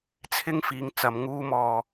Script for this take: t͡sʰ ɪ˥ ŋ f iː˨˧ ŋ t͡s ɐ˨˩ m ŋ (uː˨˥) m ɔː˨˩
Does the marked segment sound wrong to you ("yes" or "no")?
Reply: yes